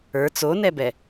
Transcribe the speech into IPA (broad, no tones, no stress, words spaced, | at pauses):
ə˞ t͡sonɛbɛ